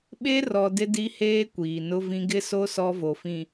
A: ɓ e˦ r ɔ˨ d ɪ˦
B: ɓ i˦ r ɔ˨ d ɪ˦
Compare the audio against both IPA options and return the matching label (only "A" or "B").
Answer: A